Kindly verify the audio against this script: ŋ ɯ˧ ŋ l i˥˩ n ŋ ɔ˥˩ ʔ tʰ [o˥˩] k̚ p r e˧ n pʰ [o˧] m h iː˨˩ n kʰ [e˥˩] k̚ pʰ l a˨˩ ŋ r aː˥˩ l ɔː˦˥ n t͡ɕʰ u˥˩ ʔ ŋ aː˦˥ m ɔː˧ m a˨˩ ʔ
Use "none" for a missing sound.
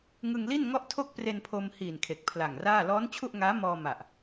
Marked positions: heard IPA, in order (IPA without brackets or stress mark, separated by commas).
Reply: o˥˩, o˧, e˨˩